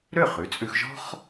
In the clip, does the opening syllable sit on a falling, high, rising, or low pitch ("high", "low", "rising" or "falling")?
falling